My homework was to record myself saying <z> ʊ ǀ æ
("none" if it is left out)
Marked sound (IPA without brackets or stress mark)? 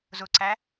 z